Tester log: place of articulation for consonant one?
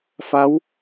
labial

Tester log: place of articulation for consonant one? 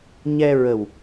palatal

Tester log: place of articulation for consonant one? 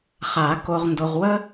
uvular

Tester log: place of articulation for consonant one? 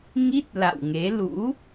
velar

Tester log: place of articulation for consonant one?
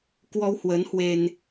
velar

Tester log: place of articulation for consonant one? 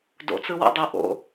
alveolar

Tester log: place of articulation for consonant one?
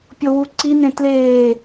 labial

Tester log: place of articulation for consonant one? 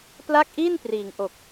labial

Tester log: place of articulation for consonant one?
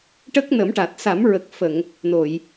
retroflex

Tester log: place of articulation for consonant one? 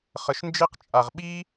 uvular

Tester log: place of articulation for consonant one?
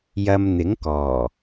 palatal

